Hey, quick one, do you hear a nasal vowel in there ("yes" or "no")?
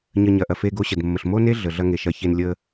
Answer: no